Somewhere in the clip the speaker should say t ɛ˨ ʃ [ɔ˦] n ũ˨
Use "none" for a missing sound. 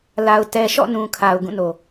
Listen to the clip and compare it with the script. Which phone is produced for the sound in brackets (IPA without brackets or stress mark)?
ɔ̰˦˨